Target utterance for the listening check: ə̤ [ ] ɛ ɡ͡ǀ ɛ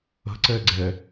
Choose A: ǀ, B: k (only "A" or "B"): A